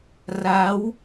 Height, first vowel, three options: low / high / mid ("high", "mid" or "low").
low